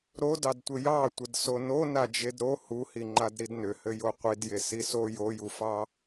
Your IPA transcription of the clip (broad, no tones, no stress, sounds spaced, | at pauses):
ɾ o d ɑ d tʷ ɘ j ɑ tʷ ɘ d s o n o n a d͡ʒ e d ɾ o h u h i ŋ͡ǃ a d ɾ i d n ʏ h ɘ j o qʷ i d j e s i s o j o j u f ɑ